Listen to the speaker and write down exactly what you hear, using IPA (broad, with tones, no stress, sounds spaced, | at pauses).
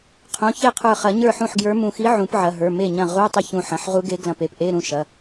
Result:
qʰ ũ˩˧˩ ç e˥˩ qʰ ə˞˧˩ χ ɐ˨˩˦ ɲ ə˞˥˩ ħ ũ˥˩ ħ ɡ j ə˞˧˥ m ũ˧˩ x i˧˥ ʕ ũ˨˩˦ p ʕ ɐ˩˧˩ ɦ ə˞˩˧˩ m e˥˩ ɲ ɐ̃˥˩ ʁ u˧˥˧ tˤ ə˥˩ ç ũ˧˩ ħ ɐ̃˩˧˩ ħ ʁ u˧˥ ɡ e˧˥ ɡ l ɐ̃˧˩ p e˧˩ p ʔ e˧˥˧ ɾ ũ˥˩ ʃ ɐ˩˧˩